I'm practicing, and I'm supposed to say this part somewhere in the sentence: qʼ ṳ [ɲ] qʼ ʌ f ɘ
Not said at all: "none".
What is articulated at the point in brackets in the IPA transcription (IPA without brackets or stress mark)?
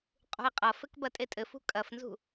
j